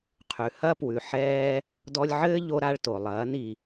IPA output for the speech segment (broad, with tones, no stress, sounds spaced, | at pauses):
qʰ ʉ˨ h ɐ˦ p w ʉ˨ ħ ɛː˦ | d ɔ˧ lʲ ʕ ɘː˦ ʎ o˧ ɾ a˧ ɭ t o˨ lˠ ɐː˨˦ n i˧